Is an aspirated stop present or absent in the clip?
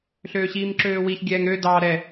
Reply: absent